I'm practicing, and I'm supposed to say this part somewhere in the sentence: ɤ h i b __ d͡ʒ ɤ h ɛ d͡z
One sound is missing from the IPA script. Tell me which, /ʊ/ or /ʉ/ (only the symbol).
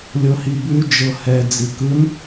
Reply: ʉ